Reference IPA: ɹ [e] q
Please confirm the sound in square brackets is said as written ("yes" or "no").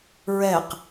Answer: no